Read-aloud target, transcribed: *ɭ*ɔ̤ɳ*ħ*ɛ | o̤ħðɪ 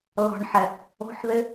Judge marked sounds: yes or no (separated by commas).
no, yes